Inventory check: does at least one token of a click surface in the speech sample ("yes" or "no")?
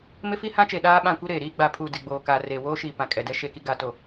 no